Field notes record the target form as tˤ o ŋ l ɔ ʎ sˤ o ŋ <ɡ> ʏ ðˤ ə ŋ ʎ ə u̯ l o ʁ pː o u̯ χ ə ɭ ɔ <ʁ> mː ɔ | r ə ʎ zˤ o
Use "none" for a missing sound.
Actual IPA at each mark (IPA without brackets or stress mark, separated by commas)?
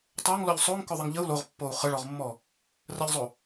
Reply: k, ʁ